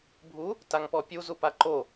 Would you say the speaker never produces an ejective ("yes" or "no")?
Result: yes